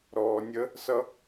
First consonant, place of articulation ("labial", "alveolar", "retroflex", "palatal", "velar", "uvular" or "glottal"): alveolar